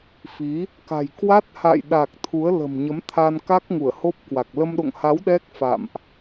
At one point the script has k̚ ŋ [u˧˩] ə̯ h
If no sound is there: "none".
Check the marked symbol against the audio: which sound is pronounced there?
u˧˩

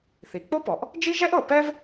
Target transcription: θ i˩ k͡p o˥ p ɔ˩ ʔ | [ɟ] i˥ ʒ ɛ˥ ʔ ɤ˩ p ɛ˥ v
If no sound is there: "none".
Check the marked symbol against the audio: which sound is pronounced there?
d͡ʒ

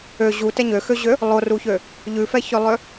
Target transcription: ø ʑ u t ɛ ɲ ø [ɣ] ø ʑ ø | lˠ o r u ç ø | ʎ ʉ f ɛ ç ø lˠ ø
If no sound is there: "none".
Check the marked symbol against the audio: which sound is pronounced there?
x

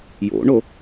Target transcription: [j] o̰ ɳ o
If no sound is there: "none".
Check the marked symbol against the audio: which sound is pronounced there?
j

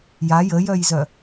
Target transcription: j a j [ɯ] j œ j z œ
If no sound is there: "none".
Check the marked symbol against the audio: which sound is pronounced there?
ə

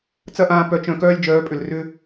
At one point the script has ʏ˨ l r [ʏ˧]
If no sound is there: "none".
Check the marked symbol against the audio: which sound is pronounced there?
ʏ˧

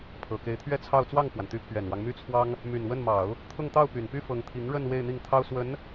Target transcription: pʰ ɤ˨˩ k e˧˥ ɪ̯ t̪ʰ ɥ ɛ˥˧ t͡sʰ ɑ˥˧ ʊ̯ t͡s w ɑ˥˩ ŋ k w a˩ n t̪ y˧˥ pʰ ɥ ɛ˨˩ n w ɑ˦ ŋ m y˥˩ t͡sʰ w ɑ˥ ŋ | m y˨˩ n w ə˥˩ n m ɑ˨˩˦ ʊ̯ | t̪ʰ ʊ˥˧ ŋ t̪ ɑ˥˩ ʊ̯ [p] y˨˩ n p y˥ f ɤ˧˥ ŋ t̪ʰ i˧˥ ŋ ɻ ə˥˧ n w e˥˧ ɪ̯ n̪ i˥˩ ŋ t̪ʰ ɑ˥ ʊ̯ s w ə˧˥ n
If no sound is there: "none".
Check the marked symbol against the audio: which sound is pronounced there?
p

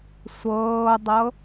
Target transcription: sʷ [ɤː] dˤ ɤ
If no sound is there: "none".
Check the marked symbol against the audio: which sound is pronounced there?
ɤː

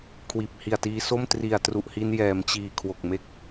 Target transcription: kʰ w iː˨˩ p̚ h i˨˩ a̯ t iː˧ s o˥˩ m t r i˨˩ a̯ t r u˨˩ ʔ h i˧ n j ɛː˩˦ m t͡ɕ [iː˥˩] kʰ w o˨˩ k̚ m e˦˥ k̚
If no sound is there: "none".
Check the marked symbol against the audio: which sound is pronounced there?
iː˨˩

